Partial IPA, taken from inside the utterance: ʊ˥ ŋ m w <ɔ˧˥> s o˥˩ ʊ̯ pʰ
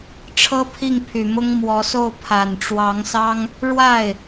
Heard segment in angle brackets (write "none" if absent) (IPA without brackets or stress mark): ɔ˧˥